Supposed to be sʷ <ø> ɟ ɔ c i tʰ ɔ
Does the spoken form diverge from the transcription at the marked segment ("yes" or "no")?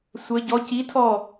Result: yes